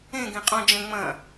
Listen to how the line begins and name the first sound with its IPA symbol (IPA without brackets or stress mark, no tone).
ẽ